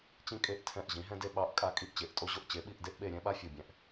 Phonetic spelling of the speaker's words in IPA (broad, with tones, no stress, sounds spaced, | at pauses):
t͡ɕ ĩ˥ kʼ e˥˧ ʔ tʰ ɛ̃˥˧ ʔ ʑ ĩ˨˥ ɦ ɛ̃˥ d e˥ ɓ ɑ˨˥ ʔ kʼ a˥ kʼ i˥˧ ʔ t͡ɕ e˨˥ ʔ tʼ o˥ ʑ o˥ ʔ t͡ɕ e˨˥ ɓ i˥˧ ʔ d e˥ ʔ ɓ e˥˧ ɾʲ ɛ̃˥ ɓ a˥ fʲ o˥˧ bʲ ɛ̃˥ ʔ